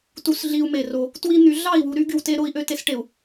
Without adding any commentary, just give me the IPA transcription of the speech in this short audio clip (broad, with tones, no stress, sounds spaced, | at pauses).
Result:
t u˨ s ɮ i˦ u̯ m e˨ r o˦ | t w i˦ n̪ y˨˦ ɮ ɑ˦˨ i̯ w u˨ ɾ y˦ ɡ y˨ w t e˦ ɾ o˦ i̯ ʔ ø˦˨ t e˦ s ʈ e˨ u̯